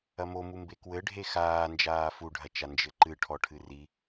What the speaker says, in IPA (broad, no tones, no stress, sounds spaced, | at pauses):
ɐ m o m u m b e k w ɘ ɖʱ e x aː n d͡ʒ aː f u ɖʱ ɐ t͡ʃ a n d͡ʒ ɘ ǃ ɨ ʈʰ ɔ ʈʰ ɨ r i